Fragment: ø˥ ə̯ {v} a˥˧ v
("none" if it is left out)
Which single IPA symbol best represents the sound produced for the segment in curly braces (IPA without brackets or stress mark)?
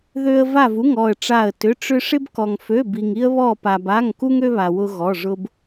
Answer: v